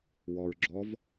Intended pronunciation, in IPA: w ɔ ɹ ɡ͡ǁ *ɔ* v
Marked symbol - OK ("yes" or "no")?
yes